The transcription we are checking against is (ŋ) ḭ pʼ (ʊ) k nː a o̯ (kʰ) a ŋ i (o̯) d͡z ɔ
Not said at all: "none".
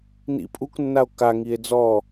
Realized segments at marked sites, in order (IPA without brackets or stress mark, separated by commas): n, u, k, e̯